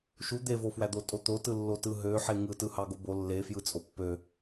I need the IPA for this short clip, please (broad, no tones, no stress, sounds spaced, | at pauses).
ʃ u d̪ e v o f w æ d̪ o tʼ o t̪ o t ɯ lː o t ɯ ɦ ø ħ e ŋ ɯ t ɯ h ɑ ɡ o b o lː e f j ɯ t͡sʼ o pː ø